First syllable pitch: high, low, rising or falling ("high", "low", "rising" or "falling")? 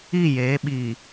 falling